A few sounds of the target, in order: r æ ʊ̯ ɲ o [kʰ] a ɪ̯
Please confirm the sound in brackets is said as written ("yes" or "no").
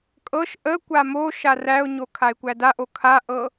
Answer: yes